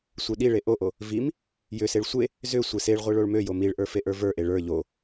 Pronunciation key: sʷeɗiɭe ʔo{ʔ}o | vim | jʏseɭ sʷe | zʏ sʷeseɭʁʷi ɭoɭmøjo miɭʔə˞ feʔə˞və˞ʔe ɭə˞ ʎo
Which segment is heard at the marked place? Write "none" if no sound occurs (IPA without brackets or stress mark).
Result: ʔ